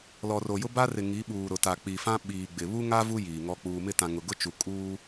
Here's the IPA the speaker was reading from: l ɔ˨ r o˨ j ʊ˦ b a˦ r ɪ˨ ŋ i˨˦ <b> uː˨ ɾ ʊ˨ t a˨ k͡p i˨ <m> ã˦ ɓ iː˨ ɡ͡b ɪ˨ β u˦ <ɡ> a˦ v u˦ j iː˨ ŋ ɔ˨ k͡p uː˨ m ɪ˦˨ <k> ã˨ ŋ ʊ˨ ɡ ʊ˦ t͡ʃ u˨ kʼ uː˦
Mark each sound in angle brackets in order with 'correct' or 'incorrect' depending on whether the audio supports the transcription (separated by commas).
incorrect, incorrect, incorrect, incorrect